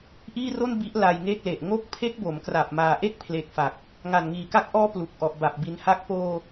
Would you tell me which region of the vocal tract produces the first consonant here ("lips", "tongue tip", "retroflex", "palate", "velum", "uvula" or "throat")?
throat